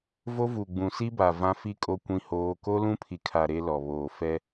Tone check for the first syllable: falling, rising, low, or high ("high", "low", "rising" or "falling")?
high